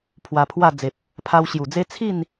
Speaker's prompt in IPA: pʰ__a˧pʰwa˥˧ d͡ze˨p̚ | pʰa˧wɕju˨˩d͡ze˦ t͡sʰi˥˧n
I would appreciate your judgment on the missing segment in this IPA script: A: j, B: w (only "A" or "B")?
B